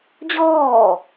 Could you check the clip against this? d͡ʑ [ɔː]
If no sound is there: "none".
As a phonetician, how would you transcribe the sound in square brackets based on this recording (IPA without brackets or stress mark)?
ɔː